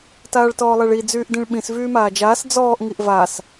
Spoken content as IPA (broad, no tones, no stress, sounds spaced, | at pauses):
t aː ɭ t ɔː lˠ ɛ ɭ i d͡z yː ʔ d ĩ ɭ ɓ ĩ s v yː m aː d͡ʒ aː s d͡z ɔː ʔ ŋ i ʔ v a s